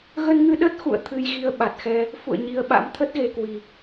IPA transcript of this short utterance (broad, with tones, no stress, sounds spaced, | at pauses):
ɣ ə˧ n ŋ ɨ˧ ɗ ə˦˥ t̚ x ṵ˧˨ ə̯ t̪ʰ ɨ˧ j ɣ i˧ ə̯ ɓ a˨˩ t̚ x ɛ˧ | f ṵ˧˨ ə̯ ɲ i˧ ə̯ ɓ a̰˧˥ m t̪ʰ ə˦˥ t̚ ɣ e˧ k w i˧